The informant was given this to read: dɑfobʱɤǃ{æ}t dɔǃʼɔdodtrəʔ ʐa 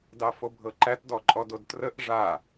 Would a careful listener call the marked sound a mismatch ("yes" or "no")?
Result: no